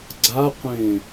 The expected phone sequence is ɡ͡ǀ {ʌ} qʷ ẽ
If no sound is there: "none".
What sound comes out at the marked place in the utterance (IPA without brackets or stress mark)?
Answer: a